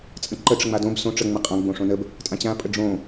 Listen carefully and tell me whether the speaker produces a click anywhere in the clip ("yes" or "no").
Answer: yes